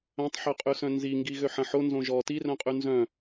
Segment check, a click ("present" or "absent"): absent